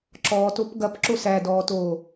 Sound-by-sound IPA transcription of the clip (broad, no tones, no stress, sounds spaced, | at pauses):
ǁ ɔː t o p ɡ ɐ p ǁ o s æ d ɔː t oː